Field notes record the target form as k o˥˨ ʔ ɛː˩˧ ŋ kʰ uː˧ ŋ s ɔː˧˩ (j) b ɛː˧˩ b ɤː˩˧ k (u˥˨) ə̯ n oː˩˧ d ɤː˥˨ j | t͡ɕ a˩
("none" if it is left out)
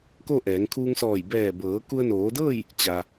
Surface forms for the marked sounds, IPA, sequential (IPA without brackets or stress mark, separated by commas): j, u˧